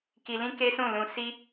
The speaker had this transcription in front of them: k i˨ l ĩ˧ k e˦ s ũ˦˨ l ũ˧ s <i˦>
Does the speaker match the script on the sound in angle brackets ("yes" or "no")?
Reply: yes